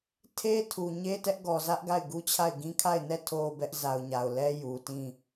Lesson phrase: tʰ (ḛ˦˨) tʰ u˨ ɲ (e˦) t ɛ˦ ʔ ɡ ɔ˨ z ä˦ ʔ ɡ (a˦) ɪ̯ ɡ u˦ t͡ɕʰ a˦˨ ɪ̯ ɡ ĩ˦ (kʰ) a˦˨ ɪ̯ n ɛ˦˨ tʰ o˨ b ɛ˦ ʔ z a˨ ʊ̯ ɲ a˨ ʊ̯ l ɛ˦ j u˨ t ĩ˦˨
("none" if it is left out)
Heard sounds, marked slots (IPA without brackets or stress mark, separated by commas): e˦, e˦, a˦˨, kʰ